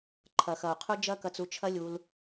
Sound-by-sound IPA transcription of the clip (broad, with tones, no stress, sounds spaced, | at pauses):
ǃʰ ɐ˨ x ɐ˨ u̯ qʰ u˧ d͡ʒ ɐ˦ k ɐ˧ t͡s u˧ t͡ʃʰ ɐ˦ lʲ u˧ l